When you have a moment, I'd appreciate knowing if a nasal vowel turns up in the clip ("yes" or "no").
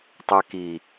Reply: no